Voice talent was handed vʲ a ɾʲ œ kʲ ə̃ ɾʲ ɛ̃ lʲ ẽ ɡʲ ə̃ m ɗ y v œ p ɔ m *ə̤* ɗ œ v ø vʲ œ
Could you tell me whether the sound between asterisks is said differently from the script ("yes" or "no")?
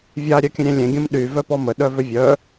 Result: yes